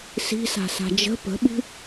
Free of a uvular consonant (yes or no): yes